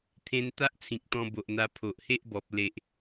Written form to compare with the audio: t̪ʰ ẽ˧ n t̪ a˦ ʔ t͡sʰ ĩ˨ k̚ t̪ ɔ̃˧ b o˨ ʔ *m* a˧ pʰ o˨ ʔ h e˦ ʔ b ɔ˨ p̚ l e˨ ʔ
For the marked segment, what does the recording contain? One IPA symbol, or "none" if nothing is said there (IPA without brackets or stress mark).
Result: n̪